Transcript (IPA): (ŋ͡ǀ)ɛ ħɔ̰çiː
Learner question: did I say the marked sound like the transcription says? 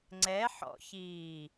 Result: yes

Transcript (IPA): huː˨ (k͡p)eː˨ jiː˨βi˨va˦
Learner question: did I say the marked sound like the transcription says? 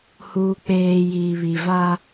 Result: yes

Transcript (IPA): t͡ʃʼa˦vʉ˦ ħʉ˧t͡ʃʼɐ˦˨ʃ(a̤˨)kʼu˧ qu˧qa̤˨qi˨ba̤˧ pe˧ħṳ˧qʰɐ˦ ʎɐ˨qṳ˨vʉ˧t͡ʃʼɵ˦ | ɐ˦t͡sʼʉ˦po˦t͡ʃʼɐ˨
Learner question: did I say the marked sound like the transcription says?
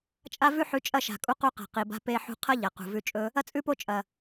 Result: yes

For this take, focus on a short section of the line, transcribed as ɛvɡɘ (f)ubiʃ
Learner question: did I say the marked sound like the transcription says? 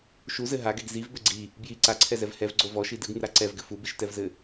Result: yes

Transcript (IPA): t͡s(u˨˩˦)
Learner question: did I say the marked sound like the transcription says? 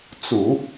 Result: yes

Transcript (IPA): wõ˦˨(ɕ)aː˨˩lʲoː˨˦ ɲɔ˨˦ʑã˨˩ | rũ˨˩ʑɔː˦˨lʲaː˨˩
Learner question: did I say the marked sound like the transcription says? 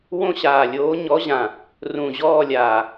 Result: yes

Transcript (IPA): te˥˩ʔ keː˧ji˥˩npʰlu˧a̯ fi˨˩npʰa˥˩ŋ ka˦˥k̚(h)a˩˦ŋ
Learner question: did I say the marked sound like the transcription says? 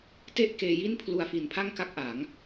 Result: no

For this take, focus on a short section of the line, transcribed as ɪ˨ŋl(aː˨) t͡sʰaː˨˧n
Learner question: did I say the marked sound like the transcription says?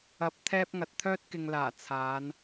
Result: no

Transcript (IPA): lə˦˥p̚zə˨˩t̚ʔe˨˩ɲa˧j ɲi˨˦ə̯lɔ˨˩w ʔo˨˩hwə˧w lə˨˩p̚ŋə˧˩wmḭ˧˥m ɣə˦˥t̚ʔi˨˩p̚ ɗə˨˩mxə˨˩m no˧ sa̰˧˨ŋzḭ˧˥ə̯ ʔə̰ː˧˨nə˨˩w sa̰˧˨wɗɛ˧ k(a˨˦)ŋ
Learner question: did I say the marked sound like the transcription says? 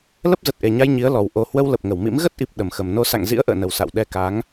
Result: yes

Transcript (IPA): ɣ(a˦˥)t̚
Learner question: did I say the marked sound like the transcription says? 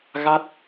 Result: yes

